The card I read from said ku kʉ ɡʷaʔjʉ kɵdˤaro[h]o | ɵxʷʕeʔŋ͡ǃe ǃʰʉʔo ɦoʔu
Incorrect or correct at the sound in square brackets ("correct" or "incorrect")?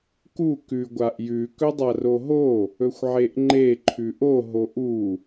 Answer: incorrect